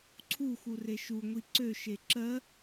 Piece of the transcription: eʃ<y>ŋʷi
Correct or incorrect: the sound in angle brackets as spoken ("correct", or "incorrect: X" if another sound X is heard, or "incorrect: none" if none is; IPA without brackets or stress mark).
incorrect: u